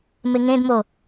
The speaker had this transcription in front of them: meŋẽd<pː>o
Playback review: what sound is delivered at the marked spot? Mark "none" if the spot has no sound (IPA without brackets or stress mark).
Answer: m